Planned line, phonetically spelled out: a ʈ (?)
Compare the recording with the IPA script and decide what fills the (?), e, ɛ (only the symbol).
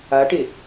e